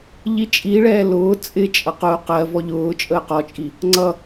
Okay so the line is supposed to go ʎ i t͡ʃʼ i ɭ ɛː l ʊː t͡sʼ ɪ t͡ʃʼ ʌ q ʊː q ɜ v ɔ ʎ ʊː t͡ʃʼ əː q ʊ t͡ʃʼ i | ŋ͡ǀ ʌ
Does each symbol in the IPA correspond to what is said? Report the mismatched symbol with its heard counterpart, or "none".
ʊ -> ɔ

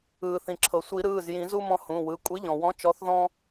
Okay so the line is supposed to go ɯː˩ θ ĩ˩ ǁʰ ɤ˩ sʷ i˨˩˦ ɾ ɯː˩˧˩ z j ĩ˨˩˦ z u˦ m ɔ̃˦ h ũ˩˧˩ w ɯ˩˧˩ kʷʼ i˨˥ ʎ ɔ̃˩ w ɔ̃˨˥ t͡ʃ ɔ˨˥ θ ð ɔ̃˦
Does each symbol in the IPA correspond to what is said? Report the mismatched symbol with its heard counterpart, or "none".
none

